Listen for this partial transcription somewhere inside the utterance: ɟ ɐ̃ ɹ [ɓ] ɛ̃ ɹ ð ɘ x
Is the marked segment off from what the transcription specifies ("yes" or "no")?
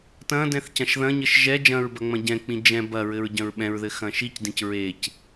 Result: no